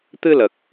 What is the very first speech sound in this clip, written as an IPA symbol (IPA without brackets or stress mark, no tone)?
t̪